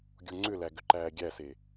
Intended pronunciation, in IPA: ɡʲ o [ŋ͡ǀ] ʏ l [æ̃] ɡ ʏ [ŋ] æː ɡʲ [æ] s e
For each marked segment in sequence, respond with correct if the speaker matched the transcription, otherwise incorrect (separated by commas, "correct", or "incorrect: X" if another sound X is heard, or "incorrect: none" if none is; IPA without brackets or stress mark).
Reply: correct, incorrect: æ, incorrect: ǃ, correct